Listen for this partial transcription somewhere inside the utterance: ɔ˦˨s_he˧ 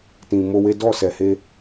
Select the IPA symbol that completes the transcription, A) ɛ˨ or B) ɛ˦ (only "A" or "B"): A